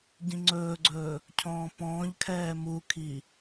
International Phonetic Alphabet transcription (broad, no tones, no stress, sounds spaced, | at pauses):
ɟ ĩ ŋ͡ǀ ɵː ɡ͡ǀ ɵː | cʰ ɔ̃ː p ɔ̃ː ʎ kʰ ɛː m u kʰ i